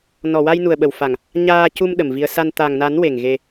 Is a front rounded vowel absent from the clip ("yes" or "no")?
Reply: yes